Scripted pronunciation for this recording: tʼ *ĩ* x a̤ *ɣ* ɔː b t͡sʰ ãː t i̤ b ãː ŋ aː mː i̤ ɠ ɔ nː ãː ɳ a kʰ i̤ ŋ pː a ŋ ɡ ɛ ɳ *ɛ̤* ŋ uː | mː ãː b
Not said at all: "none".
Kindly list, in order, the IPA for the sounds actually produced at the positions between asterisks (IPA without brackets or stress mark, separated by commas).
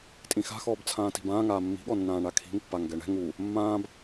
ĩ, x, ɛ̤